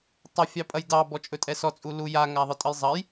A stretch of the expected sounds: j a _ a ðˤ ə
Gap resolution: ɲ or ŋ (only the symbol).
ŋ